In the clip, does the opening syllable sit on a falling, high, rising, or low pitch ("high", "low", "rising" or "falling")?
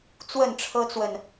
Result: falling